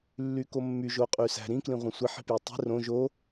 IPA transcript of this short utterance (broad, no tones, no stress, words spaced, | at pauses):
lːykomːy ʒoqʼysæ̤ ɾĩ klĩʁʷɑ̃sʷi ħi̤pjøtˤi̤ rõ ʒo